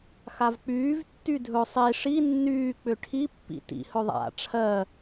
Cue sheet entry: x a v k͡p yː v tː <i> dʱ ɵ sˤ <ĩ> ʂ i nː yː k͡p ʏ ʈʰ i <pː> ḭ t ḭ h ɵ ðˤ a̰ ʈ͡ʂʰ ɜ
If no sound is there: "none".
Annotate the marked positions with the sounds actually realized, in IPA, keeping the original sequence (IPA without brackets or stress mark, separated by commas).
y, i, pː